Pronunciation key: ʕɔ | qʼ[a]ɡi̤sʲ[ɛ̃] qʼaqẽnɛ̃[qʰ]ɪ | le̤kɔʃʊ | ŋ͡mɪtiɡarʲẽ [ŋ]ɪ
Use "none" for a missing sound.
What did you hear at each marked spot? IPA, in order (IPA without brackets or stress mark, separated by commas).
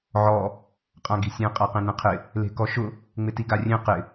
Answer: ã, ẽ, qʰ, q